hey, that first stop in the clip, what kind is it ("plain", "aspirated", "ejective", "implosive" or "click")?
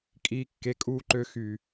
ejective